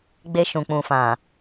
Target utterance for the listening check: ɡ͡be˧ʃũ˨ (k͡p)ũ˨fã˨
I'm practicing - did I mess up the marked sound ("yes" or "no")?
no